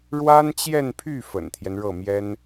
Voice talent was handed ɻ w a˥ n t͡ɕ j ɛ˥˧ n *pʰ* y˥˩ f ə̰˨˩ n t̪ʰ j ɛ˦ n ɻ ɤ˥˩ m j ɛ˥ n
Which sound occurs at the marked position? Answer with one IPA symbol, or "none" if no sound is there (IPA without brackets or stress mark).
pʰ